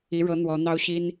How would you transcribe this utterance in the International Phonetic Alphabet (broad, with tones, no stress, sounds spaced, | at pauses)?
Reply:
i˧˥ ɻ ɤ˧˥ n̪ w ɔ˧˥ n̪ ɑ˥ ʊ̯ ɕ i˥ n